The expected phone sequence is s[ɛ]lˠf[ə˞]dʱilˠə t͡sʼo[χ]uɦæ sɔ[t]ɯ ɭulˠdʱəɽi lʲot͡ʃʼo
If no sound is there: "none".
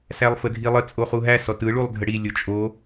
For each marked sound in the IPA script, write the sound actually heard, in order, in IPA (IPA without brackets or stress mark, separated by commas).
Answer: æ, ə, χ, t